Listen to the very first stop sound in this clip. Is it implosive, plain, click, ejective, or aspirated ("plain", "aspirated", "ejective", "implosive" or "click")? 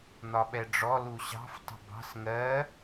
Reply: implosive